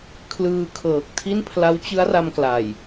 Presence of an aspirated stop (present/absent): present